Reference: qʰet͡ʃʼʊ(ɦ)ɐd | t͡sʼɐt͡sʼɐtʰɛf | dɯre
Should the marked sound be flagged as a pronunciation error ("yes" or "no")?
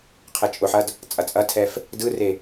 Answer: yes